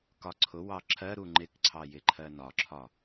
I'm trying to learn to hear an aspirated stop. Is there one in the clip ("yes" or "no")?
yes